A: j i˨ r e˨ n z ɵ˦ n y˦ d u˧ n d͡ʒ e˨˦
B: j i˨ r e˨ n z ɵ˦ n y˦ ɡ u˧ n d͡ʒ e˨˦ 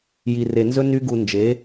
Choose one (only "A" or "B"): B